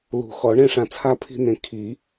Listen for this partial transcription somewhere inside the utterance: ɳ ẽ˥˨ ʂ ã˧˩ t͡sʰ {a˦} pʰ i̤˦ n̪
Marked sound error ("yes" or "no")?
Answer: no